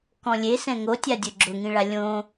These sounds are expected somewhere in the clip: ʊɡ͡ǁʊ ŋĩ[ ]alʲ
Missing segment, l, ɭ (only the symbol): ɭ